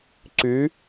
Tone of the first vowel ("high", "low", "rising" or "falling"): rising